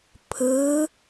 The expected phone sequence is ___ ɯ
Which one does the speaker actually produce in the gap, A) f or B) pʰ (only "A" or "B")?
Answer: B